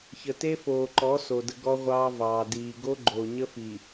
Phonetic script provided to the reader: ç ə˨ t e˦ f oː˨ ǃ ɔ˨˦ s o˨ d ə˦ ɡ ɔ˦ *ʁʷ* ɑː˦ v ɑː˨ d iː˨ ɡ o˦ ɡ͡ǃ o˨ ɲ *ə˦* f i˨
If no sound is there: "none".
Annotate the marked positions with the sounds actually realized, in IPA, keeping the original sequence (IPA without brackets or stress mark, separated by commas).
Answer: ʁʷ, ə˦